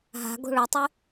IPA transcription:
ɦ a̤ ɡ o̤ ɭ o tˤ ɪ

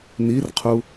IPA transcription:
n i r qʰ u

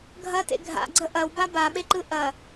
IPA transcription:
ɡʱ ɐ t ḛ ɡʱ a̰ ɡ͡ǀ ə ʔ ɐ w b a b a ɓ e ǃ ɯ ʔ ɐ

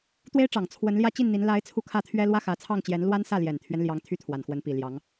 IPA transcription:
t̪ w e˥ ɪ̯ ʈ͡ʂ ɑ˨˩ ŋ t͡sʰ w ə˧˥ n l j ä˥˧ t͡ɕ i˥˩ n n̪ i˧˥ n l a˧˥ ɪ̯ t͡sʰ u˥˧ kʰ ä˥˩ t̪ʰ ɥ ɛ˥ l w ä˥ x ä˧˥ t͡sʰ ɑ˥˩ ŋ t͡ɕ j ɛ˧˥ n l w a˥ n s ä˥˩ l j ɛ˨˩ n t̪ʰ ɥ ɛ˦ n l j ɑ˥ ŋ t̪ʰ y˥ t̪ʰ w a˨˩ n x w ə˧˥ n p i˨˩ l j ɑ˧˥ ŋ

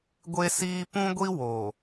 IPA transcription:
ɡʷ e˦ s iː˦ p ũ˦ ɡʷ i˦ w oː˨

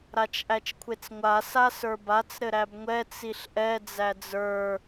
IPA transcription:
ɾ a t͡ʃ ʔ æ t͡ʃ kʷʰ e t͡s ŋʷ a s a s ə˞ b a t͡s ɾ ɘ ɾ æ b ŋʷ ɛ t͡s i ɬ ʔ ɛ d͡z æ d͡z ə˞

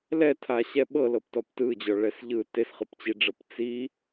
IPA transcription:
l ɛ tʰ a ɕ ɛ ɓ ɤ l ɤ p t ɔ p t ɯ d͡ʑ ɔ ɭ ɛ s ʎ ɯ t e s χ ɯ p t͡ɕ i ɖ͡ʐ ɤ p t͡s i

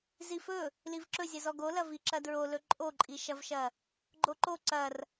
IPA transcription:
z i f ɵ | l i v ǁ ɵ zʲ ʌ z ɔ ɡ o l ɐ v i ǁ ɐ d ɹ o l ɵ ǃʼ o ǃʼ i ʃ ɐ v ʃ ɐ | ɡ͡ǃ o ǃ o ǀ ɐ r

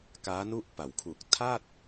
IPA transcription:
k aː˦˥ n u˥˩ ʔ p a˩˦ w kʰ u˨˩ k̚ tʰ a˥˩ t̚

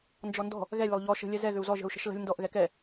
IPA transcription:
n d͡ʒ ɔ n d ɔ̤ | ɣ ɛ lʲ ə lˠ ʎ ɔ ʃ ə̤ lʲ ɛ z ɛ ɣ ʏ u̯ z ɔ ʒ ə̤ u̯ ʃ ə̤ ʃ l ə̤ lʲ n d ɔ ʔ ɣ ɛ k ɛ

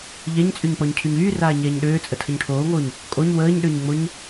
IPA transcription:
ʎ ɛ ɲ t͡sʼ y ɲ k͡p ɔ ɲ cʰ y ɲ yː r aː ɲ ɛː ɲ ɗ øː t͡sʼ ə tʰ ə ɲ ʈʰ oː ŋ oː ɲ | kʼ o ɲ w əː ɲ ɗ ø ɲ ŋ͡m o ɲ

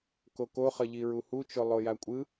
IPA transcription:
k o k o χ ʌ ʎ i ɹ u h u t͡ʃ o lˠ o j a kʷʼ ɯ

